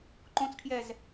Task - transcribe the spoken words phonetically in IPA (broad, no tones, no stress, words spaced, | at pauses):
ǃõt͡skʰjɛz